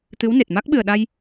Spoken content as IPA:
t̪ ɨ˧˥ w n e˨˩ t̚ m a˦˥ k̚ ɓ ɨ˨˩ ə̯ ɗ a˧ j

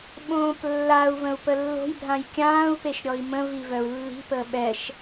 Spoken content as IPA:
ɓ õː p lː a u̯ v ə̃ u̯ p ə lː o̤ j bʱ ã j kʲ ãː u̯ p e ʃ ɾʲ ɔ i̯ m ə̃ v i v œ u̯ lː i̤ p əː ɓ ɛ ʃ

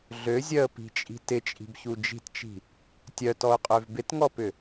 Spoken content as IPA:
ɮ ø zʲ œ ə̯ p i̤ t͡ʃʼ i̤ t ɪ t͡ʃʼ i̤ b ç u d͡ʒ i̤ t t͡ʃ i̤ | tʲ œ t ɔ ʊ̯ qʼ ø v b ɪ t ŋ ɔ p ʏ

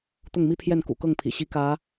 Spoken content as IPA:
t̪ ʊ˥˩ ŋ m i˥ pʰ j ɛ˥˩ n k ṵ˨˩ k ɤ˥˩ ŋ pʰ ḭ˨˩ ɕ i˧˥ k ä˧˥

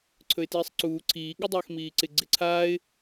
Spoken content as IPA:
ǀʰ ɵ ɪ̯ t iː sˤ ǀ uː ǀʰ iː ɠ ɐ dˤ ɵː x m iː ǀ ɪ ɡ͡ǀ ɪ ǀʰ aː ɪ̯

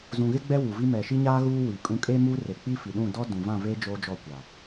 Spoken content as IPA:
z ũ˨ ɣ ɪ˦ ɡ͡b ɛ˦ w u˨ v i˦ m ɛ˨ ʃ i˦ ɲ aː˦ ɣ uː˦ w i˨ kʼ ũ˦ kʼ e˦ m u˦ r e˨ k͡p i˦ f i˨ ɗ ũ˦˨ d ɔ˦ d ũ˨ v ã˦˨ v eː˦ d͡ʒ oː˦ d͡ʒ ɔ˦˨ kʷ a˨

